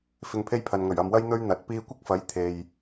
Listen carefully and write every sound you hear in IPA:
fɪ˧ŋpʰe˥jpʰɐ˨nŋɵ˨˩ɥ ɐ˨mwɐ˥j n̪ɵ˥ɥ n̪ɐ˨˥t̚ piː˧kʷɪ˥k̚fɐ˨˥j t̪ʰe˨j

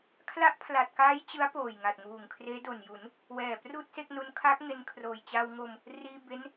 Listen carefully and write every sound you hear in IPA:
kʰla˦˥ʔpʰla˨˩t̚kaː˦˥j t͡ɕɯ˦˥a̯poː˨˩j ŋa˨˩t̚ŋuː˨˩ŋ kʰreː˦˥do˨˩nju˩˦n | wɛː˨˩pruː˥˩t̚se˥˩k̚nu˦˥n kʰa˦˥k̚ŋe˧nkʰroː˨˩j t͡ɕa˧wŋo˧m | riː˧ be˦˥n

